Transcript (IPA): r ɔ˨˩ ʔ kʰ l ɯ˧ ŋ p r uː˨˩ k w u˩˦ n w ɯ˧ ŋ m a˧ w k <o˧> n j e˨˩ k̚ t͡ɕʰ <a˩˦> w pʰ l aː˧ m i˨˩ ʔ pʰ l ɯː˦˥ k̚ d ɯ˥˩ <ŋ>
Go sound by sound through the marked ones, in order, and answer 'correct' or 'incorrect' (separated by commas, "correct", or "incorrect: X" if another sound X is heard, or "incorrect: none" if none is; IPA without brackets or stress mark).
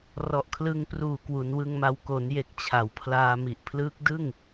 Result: incorrect: o˩˦, correct, correct